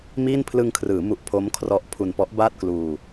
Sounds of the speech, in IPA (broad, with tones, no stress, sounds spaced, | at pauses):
m iː˥˩ n pʰ l ɯ˧ ŋ kʰ r ɯː˩˦ m u˨˩ ʔ pʰ o˦˥ m kʰ r ɔ˦˥ ʔ pʰ u˧ n p ɔ˦˥ ʔ b aː˥˩ t̚ k l uː˧